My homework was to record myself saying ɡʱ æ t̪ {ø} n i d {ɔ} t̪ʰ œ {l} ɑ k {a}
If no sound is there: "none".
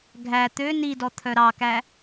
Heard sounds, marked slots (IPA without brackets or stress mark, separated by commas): ø, ɔ, ɾ, æ